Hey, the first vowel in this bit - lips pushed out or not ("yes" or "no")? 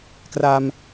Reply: no